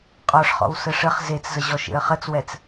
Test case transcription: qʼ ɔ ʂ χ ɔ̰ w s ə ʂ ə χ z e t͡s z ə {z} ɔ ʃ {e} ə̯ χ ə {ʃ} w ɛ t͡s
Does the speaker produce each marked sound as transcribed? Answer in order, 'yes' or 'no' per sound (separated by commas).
no, no, no